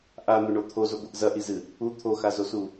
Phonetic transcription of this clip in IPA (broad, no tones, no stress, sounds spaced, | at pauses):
ʔ a n̪ o ɳ o t̪ʰ o z o ɡʷ ɨ ʔ z ɐ ʔ i z ɨ | u t̪ʰ o x a z o s u